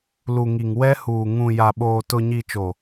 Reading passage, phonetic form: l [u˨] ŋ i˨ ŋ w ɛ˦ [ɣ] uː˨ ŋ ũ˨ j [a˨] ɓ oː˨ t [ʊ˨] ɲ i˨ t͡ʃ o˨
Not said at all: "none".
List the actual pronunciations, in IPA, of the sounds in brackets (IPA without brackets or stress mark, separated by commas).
u˨, h, a˨, ʊ˨